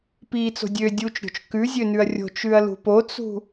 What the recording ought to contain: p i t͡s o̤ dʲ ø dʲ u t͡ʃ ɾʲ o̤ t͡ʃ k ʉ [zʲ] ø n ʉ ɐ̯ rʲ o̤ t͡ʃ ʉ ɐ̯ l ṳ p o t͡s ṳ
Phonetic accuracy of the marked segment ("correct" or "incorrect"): correct